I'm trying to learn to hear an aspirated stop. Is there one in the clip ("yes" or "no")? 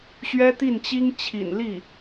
yes